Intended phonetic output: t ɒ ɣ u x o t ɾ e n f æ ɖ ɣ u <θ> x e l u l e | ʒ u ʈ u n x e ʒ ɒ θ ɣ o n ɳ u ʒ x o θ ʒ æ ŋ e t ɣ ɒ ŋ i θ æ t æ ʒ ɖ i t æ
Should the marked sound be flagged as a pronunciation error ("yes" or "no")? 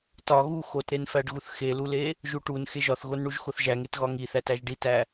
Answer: no